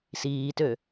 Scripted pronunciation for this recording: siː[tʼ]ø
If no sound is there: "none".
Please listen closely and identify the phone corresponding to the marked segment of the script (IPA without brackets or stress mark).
t